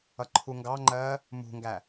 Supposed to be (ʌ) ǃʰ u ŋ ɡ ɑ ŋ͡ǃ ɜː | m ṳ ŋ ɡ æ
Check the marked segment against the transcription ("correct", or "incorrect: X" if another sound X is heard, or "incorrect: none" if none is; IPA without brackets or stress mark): correct